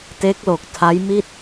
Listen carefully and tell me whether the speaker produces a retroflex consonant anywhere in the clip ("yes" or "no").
no